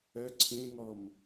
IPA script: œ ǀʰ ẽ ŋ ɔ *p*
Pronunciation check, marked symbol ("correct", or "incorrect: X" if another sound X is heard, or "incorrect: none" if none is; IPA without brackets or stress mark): incorrect: m